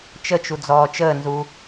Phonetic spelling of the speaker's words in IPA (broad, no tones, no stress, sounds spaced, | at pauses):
t͡ʃ ə t͡ʃ u d͡z ɔː t͡ʃ əː n z u